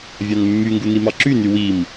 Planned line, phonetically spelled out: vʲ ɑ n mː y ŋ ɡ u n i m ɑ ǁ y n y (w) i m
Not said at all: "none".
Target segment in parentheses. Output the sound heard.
w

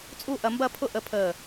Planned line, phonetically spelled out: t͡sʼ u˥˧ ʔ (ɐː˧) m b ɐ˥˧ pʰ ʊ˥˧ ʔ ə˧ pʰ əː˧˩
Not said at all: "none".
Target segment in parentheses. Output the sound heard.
ɐ˧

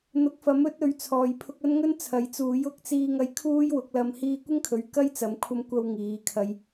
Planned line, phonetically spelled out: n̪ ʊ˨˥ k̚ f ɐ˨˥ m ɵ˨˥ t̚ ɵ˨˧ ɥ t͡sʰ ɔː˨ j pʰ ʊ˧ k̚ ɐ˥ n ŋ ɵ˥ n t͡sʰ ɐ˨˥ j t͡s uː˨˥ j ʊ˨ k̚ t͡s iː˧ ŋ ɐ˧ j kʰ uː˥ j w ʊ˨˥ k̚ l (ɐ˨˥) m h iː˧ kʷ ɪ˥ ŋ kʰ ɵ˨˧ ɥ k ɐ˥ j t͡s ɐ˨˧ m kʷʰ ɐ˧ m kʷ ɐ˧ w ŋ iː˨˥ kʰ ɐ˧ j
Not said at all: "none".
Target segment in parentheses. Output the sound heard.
ɐ˧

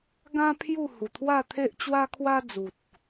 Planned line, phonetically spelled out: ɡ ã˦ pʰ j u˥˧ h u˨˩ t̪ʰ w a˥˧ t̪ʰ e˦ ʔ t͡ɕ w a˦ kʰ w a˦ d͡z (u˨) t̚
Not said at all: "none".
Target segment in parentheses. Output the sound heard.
u˨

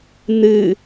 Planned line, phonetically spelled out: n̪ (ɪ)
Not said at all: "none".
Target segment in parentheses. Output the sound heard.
ɨ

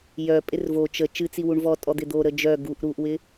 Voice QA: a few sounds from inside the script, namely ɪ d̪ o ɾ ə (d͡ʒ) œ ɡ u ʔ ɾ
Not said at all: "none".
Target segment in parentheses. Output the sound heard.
d͡ʒ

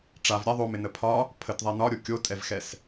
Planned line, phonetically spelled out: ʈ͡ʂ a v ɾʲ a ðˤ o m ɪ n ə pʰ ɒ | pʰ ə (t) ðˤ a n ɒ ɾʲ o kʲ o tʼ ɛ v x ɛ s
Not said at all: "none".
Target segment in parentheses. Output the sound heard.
t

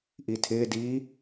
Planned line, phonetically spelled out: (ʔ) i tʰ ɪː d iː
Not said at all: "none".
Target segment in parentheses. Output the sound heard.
ʔ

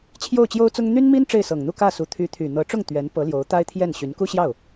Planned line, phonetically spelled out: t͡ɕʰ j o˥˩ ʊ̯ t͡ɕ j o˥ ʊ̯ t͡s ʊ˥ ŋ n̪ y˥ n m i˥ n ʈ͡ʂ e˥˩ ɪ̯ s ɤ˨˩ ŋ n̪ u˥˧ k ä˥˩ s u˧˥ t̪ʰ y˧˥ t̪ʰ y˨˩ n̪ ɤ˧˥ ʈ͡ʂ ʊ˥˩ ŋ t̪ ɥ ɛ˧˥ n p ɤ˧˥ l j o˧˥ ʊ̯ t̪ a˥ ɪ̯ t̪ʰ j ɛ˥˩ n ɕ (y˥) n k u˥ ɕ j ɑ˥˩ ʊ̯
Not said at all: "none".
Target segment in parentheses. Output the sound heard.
y˧˥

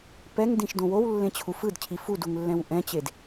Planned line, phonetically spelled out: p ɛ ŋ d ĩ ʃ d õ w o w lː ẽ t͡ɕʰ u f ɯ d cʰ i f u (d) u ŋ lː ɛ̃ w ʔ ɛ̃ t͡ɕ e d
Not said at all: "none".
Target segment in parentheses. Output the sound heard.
d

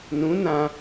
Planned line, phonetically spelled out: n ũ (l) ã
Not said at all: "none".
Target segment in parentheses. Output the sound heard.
n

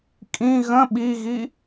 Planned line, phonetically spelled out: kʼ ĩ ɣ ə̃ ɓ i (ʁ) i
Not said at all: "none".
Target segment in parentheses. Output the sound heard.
ɣ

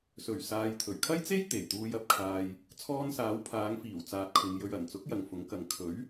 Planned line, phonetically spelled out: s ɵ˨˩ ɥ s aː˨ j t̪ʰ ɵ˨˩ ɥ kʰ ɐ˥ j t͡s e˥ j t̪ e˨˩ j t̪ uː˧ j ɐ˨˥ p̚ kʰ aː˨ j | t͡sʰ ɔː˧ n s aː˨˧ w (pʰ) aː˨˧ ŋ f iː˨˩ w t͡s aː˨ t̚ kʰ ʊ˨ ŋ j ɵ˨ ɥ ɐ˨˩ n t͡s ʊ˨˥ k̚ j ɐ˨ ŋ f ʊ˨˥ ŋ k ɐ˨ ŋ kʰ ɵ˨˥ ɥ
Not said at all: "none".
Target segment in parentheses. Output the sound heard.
pʰ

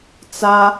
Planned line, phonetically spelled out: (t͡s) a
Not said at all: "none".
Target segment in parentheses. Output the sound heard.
t͡s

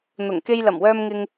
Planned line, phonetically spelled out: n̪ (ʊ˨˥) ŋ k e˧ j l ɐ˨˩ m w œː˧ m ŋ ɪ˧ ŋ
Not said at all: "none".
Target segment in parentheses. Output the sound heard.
ʊ˨˩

